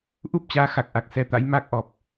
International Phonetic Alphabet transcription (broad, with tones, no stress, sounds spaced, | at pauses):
ʔ u˦˥ p̚ t͡ɕ aː˨˦ x a˨˩ k̚ ʔ a˨˩ k̚ s ɛ˨˦ t̪ a̰˧˥ j m a˦˥ k̚ ʔ ɔ˨˩ p̚